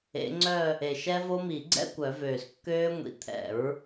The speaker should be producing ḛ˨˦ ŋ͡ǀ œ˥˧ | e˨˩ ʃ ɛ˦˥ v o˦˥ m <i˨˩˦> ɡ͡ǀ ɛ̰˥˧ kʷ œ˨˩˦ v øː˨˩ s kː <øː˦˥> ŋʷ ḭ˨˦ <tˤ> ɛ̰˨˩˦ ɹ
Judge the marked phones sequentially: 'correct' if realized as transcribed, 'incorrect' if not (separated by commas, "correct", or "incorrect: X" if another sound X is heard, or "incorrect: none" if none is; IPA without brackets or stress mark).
correct, correct, incorrect: t̪ʰ